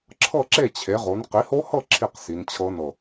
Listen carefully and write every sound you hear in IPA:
ǁʰɤ˥˨ǁe˥˨ t͡ɕʰe˩˥ʁo˩˥n qi˩˥ho˦˥hɤ˥˨ ǁʰi˥˨qsi˩˧nt͡ɕʰɤ˦˥nɤ˧˩

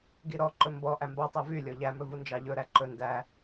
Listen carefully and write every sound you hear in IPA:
ɡiɾɔǃɵ mbɔ ʔæmbɑtˤæ vylʲɔ ʎæmɵ vund͡ʒɑʎɵɾæ ǃɵ ndæ

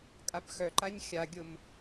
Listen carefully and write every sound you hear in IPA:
kʼapxœǃaɲ xʲaɡʲʊm

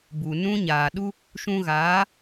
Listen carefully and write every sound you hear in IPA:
bu˨nũ˦ɲaː˨ ɗu˧ | ʃũ˧ɣaː˨˦

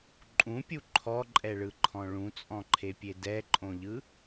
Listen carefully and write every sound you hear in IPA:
ǃʼũpʲu ǃʰɔǃʼɛɭɯǃʰɔ̃ ɭũt͡sʼɔ̃ǃʰepʲe dɛǃʼõʎɯ

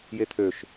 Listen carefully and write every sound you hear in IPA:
jet̪ʰøʃ

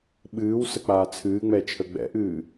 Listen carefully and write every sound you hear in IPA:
ɓɨːwsə k͡paːt͡sʰɨːŋ͡mɛ t͡ʃʰəɡ͡bɛ̰ʔɨː

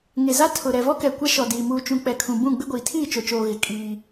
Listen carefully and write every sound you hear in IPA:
ŋe˨za˦ tʰʊ˨ ɾɛ˨vɔ˦kɛ˨ kʷa˦ʃɔ˨ diː˨ muː˨t͡ʃũ˨ k͡pɛ˨kʰũ˨bũ˦˨ ɡ͡bɪ˦ɡʷiː˨ tʰiː˦˨t͡ʃo˨t͡ʃoː˨ ɣɪ˨ kʼiː˦

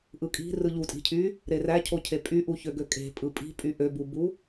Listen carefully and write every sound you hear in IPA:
ʔɯkʼi̤ rɯʎutʼi̤cʰy | ɾeræcʰocʰe pʼyʔuçø ɡøkʼe̤ pʼɯpʼi̤pʼy ʔøbubu

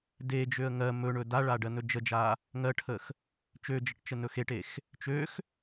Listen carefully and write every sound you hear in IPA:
ded͡ʒøə̯ ŋɜ mɵɳɵ daɭa ɖɜnɵd͡ʒəd͡ʒa | ŋɜʈʰəx | t͡ʃød͡ʒəʈ t͡ʃənɵxeʈex | t͡ʃøx

